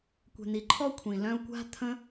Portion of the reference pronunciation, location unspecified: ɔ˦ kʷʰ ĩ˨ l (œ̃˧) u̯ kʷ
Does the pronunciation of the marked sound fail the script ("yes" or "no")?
no